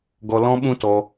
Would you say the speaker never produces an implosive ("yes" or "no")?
no